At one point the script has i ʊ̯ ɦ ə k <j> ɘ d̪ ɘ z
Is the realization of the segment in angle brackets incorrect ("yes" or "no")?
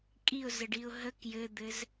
no